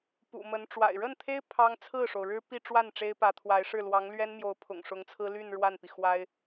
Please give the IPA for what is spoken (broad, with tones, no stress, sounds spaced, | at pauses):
p ṵ˨˩ m ə˧˥ n ʈ͡ʂ w a̰˨˩ ɪ̯ ɻ ə˥˩ n t̪ʰ e˥ ɪ̯ pʰ ɑ˥ ŋ t͡sʰ ɹ̩˥˩ ʂ o˩ ʊ̯ ɻ ɻ̩˥ p i˥˧ ʈ͡ʂ w a˥˩ n ʈ͡ʂ e˥ ɪ̯ p ä˧˥ t̪ʰ w a˧˥ ɪ̯ ʂ ɻ̩˥˩ l w ɑ˧˥ ŋ l ɥ ɛ˥ n m j o˧˥ ʊ̯ pʰ ʊ̰˨˩ ŋ ʂ ʊ˧˥ ŋ t͡sʰ ɹ̩˥ l y˥˧ n ɻ w a˥˩ n p i˩ x w a˥ ɪ̯